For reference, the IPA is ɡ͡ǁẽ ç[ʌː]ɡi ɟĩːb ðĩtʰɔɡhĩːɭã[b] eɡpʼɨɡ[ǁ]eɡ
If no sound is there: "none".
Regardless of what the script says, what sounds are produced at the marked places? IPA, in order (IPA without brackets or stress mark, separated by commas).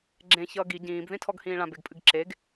ʌː, b, ǁ